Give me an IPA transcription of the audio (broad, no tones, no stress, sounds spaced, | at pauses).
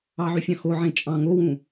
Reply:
ɑ ʕ y fʲ ɑ̃ x o ʕ ẽ t͡ʃʼ ɑ̃ ŋ o w ũ